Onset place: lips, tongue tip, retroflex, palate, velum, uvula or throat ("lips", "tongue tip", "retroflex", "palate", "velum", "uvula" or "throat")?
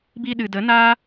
lips